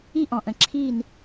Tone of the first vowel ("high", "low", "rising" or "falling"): high